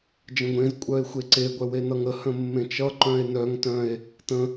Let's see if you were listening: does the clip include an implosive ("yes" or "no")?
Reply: no